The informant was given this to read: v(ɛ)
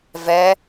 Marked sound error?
no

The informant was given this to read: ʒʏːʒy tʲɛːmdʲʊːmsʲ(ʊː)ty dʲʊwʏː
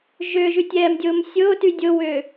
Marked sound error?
no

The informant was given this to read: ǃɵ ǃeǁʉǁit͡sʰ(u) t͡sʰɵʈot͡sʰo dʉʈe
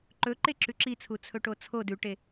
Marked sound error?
no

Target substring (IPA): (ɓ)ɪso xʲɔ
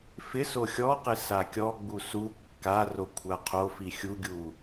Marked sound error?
yes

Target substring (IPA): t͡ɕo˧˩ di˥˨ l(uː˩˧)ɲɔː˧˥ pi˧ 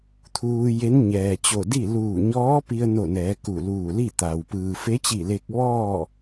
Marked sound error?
yes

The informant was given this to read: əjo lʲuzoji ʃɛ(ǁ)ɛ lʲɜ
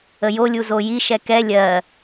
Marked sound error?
yes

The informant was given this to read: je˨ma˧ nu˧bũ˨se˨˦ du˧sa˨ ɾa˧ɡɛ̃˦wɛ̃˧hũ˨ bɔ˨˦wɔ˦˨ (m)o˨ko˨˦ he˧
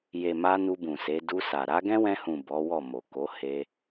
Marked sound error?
no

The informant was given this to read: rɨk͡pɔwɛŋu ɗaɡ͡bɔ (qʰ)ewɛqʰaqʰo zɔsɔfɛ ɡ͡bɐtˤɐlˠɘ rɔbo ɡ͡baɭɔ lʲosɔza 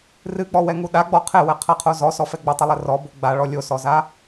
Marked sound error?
no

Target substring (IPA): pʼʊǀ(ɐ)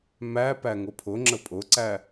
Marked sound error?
yes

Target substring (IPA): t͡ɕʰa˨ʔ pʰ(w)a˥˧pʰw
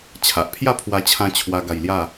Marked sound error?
yes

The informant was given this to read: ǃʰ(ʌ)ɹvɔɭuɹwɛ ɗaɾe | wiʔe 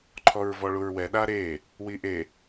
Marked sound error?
yes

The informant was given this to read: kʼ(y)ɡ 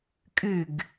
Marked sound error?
no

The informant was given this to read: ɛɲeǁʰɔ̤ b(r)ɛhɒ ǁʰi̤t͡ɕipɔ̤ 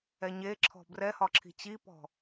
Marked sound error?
no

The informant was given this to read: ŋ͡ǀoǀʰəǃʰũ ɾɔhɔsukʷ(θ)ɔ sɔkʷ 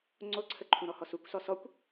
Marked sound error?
yes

